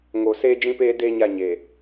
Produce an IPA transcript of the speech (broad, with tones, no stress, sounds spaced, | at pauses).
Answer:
ŋ o˨ s eː˦ d͡ʒ ĩ˦ p eː˦ d eː˦ ɲ a˦˨ ɲ eː˨